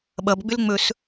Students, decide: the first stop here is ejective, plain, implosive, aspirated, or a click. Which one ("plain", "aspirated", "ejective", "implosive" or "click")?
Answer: implosive